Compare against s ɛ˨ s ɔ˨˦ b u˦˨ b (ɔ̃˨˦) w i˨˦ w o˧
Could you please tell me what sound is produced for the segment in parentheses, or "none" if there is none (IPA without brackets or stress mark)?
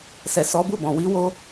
ɔ̃˨